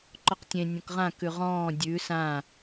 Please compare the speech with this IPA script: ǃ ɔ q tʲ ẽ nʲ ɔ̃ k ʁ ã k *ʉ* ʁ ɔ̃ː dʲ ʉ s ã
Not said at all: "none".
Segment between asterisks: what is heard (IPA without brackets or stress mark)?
ʉ